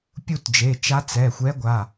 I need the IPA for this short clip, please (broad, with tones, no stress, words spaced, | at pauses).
pʲu˦˨td͡ʒe˩˧˩t͡ʃa˧˥ t͡sɛ˩˧˩xʷɛ˧˥ɡʷa˩˧˩